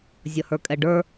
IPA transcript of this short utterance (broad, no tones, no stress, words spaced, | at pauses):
zʲʌhə˞kʼɛɖə˞